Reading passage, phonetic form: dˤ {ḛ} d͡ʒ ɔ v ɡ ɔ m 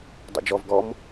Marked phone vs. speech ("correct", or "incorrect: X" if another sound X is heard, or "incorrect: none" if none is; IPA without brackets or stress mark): correct